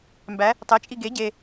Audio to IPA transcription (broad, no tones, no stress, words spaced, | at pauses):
mbæ | tˤet͡ʃʼi ɡe ɟe